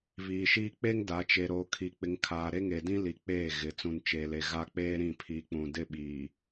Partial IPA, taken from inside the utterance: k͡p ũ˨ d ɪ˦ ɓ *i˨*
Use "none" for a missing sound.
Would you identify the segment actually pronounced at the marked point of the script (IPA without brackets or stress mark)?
iː˨